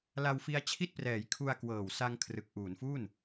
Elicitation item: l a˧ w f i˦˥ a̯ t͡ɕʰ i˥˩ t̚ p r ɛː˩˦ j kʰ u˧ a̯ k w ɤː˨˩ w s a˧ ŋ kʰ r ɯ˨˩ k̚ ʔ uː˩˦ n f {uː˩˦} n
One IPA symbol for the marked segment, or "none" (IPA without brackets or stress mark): uː˥˩